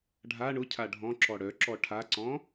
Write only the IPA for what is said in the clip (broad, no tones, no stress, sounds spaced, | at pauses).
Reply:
ɖʱ a ɳ ʊ cʰ a ɖʱ ɔ̃ ǁ ɔ ɽ œ ǁ ɔ ʈʰ a ǀ ɔ̃